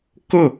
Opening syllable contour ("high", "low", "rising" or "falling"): falling